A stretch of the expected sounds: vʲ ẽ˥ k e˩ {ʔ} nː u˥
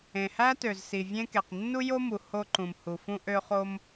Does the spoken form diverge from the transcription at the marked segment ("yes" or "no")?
yes